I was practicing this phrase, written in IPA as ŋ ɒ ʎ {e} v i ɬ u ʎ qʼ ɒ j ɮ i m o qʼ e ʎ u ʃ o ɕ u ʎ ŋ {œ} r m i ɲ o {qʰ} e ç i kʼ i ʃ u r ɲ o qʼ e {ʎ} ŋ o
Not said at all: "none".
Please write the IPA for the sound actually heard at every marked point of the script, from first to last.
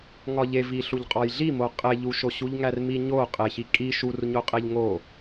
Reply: e, æ, qʼ, ʎ

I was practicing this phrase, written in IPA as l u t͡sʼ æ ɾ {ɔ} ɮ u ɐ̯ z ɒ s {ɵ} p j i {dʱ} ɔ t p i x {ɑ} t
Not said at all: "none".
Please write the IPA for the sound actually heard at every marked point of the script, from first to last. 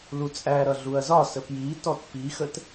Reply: ʌ, ə, t, ə

